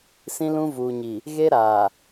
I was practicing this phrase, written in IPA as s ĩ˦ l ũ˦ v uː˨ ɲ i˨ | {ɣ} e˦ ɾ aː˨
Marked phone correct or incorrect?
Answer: correct